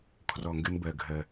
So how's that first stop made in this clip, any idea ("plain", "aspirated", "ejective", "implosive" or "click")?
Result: aspirated